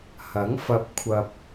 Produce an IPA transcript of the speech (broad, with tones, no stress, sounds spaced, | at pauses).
h ɐ˨˥ ŋ f ɐ˧ p̚ kʷʰ ɐ˧ p̚